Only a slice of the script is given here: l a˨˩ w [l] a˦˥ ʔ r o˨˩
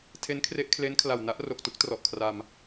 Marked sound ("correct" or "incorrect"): incorrect